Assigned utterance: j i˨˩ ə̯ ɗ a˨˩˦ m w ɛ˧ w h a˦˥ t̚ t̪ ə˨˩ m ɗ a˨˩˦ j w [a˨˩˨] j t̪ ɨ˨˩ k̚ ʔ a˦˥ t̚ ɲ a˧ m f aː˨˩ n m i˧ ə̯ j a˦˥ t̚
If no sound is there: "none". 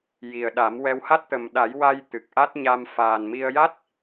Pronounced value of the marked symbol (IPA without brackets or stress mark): a˧